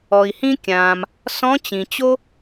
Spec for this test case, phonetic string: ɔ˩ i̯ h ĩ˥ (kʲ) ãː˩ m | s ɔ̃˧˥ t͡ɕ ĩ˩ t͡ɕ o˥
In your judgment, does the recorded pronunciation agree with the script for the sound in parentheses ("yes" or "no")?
yes